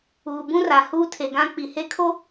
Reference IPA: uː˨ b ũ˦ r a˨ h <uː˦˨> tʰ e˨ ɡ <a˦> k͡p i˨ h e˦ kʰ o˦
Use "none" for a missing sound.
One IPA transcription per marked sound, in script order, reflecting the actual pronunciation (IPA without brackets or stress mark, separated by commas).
uː˦, ã˦